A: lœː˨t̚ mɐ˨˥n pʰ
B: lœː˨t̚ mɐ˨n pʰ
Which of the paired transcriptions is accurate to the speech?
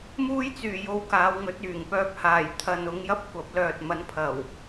A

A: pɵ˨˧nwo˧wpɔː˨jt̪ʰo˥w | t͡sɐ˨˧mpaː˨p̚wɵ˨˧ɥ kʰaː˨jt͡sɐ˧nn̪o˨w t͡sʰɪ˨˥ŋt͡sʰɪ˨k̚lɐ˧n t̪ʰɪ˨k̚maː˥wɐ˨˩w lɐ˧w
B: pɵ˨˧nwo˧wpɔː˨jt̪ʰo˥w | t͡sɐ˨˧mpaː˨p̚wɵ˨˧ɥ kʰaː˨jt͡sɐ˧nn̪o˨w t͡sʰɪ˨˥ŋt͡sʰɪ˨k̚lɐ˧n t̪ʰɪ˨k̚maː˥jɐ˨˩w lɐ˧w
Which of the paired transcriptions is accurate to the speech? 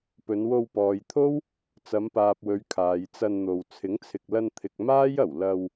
B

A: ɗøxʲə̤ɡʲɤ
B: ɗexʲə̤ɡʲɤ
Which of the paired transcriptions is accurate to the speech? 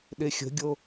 B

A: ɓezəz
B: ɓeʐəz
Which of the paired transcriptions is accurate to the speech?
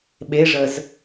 B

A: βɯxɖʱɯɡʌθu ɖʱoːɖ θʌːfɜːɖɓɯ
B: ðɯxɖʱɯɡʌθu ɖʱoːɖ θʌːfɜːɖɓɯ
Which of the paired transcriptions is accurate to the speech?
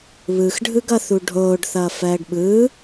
A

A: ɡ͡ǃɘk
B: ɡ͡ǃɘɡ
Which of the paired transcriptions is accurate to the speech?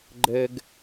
B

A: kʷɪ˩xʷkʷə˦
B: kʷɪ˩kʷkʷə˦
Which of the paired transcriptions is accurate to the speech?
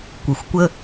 A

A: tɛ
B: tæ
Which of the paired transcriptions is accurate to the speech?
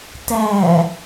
B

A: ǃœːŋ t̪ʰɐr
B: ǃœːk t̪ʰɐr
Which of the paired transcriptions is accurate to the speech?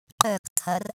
B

